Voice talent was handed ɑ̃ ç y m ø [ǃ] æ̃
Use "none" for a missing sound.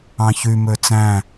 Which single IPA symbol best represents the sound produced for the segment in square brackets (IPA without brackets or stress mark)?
t͡s